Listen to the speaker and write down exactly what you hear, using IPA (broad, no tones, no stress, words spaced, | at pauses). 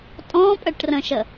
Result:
tʼɔ̃pʼəʈrə̃ʃə